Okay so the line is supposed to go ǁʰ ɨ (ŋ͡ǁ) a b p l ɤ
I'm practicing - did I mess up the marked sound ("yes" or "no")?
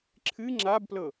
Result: no